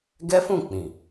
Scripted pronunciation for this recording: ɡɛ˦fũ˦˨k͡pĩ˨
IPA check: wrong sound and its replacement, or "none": none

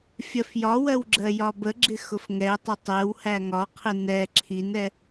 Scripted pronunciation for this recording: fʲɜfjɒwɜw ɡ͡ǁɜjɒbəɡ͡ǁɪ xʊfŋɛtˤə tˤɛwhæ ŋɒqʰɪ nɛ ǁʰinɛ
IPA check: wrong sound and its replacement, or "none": none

